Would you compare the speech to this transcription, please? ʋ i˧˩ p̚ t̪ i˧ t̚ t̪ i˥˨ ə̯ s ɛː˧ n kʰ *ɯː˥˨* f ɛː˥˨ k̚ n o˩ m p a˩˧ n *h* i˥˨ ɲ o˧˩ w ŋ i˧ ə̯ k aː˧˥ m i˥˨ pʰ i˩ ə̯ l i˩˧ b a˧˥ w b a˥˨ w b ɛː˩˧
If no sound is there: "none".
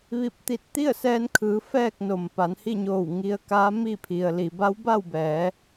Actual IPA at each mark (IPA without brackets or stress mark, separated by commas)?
ɯː˩˧, h